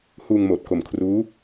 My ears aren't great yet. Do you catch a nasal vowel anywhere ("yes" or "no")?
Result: no